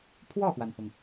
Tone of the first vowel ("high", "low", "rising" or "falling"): falling